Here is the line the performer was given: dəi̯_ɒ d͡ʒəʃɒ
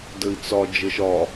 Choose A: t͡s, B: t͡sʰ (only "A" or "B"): A